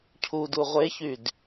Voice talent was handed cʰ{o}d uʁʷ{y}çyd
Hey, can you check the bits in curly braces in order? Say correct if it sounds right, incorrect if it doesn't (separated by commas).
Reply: incorrect, incorrect